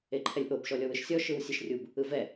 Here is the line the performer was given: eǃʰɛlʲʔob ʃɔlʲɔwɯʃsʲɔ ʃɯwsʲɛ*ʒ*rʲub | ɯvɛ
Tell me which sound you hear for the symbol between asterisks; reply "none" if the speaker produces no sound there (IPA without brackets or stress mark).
ʃ